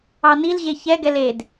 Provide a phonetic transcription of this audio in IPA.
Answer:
ɑnilʑe çɛɡɛl ed

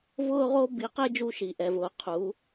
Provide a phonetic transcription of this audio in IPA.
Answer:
vʊː˥ ʁo˥ bi˨˦qe˥ d͡ʒu˥ʃi˨˦ʔɛ˨˦vʊː˨˦ qʰu˨˦

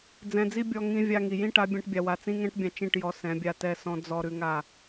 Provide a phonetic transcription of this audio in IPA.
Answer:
d͡zɛ̃˧d͡zi˦ bʲɔ˧ ŋĩ˧ vʲa˧ ŋi˨jĩ˦ʈa˨˦ bʲɛ̃˦ʈbʲa˧wa˧ t͡sĩ˦ŋɛ̃˦ʈbʲã˧ t͡ʃĩ˦˨ʈjɔ˧ sɛ̃˨˦bʲa˧tɛ˦˨sɔ̃˦ d͡zɔ˧ ɾʉ˧ŋa˦˨

